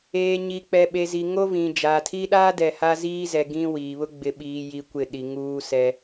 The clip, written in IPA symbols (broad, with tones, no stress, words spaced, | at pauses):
eː˨ ɲi˨k͡pɛ˨ ɓe˨zi˨ŋo˦vĩ˨ d͡ʒaː˨tʰi˦ɗaː˦ dɛ˨ha˦ziː˦zɛ˨ ɡĩ˦ wiː˨βʊ˦ ɡ͡bɪ˨ɓiː˨ji˨ kʷɪ˦˨ɗi˨ŋuː˦sɛ˦